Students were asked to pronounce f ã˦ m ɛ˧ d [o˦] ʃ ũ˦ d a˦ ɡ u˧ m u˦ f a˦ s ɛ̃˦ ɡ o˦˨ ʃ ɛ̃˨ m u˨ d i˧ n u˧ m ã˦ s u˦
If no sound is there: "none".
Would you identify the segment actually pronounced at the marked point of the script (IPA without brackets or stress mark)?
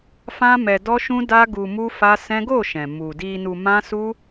ɔ˦